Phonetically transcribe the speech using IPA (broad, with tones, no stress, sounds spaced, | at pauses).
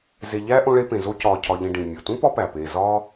z e˨ ʎ æ˦ ʔ õ˦ ɭ e˦ p ẽ˨ z o˦ c ɒː˨ cʰ ɒ˨ ʎ ĩ˨ ɖ ĩ˩ mʲ o˩ t ũ˥ p ɒ˦ p æ˩ p eː˨ z ɒː˥